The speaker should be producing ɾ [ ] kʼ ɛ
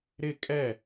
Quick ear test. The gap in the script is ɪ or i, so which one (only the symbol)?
ɪ